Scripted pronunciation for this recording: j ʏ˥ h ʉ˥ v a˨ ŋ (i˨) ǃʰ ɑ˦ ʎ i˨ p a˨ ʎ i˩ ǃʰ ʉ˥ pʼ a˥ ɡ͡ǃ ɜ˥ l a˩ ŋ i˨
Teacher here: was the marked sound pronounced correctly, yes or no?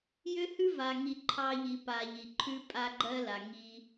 yes